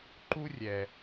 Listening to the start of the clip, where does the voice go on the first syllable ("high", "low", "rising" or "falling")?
high